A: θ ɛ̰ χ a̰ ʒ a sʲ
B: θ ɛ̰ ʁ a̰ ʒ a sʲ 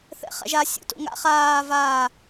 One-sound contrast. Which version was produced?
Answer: A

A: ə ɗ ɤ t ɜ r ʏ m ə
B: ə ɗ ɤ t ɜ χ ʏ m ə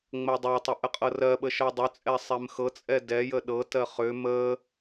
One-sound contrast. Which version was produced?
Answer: B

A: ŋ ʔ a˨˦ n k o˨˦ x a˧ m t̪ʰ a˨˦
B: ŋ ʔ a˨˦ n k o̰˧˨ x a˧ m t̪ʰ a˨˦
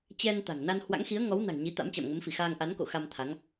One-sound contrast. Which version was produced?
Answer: B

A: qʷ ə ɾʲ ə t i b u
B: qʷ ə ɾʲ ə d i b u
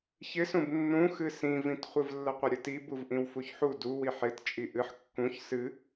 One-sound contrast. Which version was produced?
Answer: A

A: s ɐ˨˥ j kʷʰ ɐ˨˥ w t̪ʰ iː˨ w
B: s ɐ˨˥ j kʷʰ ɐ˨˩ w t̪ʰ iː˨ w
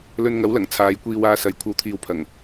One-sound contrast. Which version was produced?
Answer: A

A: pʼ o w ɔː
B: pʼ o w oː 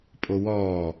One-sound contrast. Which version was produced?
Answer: A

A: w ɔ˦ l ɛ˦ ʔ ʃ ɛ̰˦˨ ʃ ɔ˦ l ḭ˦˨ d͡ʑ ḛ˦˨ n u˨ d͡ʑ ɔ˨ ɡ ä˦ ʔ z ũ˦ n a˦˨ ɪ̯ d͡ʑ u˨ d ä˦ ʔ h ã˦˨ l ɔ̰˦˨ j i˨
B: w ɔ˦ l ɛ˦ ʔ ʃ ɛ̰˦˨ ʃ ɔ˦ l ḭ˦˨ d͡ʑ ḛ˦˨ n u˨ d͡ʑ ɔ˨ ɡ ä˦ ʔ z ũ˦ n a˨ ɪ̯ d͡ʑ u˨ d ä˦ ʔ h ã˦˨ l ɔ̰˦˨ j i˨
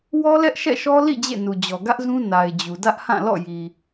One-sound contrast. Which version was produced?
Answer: B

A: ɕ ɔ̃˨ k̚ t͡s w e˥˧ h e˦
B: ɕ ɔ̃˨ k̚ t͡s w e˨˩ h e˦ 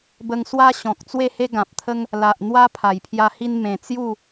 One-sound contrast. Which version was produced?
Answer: A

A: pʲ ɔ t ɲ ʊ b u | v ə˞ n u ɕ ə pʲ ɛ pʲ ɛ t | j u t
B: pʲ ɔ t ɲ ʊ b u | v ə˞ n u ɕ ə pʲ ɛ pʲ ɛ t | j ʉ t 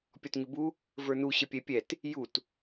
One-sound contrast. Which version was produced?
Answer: A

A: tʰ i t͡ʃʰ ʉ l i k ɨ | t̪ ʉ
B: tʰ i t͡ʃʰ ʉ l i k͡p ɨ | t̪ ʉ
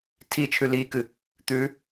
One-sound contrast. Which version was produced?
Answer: A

